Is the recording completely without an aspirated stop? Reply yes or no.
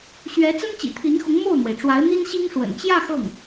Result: no